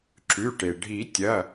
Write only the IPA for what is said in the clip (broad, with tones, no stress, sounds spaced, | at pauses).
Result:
ǁ ʉ˩˧˩ ʈ e˩ ɖʱ i˨˩˦ tʲ ɐ˩˧˩